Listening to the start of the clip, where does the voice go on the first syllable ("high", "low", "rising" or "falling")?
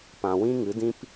low